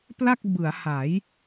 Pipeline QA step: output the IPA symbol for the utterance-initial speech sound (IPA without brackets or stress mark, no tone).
p